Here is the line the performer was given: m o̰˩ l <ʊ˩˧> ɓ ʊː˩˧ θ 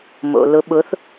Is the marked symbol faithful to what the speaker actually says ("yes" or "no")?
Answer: yes